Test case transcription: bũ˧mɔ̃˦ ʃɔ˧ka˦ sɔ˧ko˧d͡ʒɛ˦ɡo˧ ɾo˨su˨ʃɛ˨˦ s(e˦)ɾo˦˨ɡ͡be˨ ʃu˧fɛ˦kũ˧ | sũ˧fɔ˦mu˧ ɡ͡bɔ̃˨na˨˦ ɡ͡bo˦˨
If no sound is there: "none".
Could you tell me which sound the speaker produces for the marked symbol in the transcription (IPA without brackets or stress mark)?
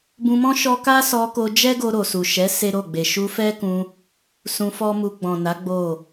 e˦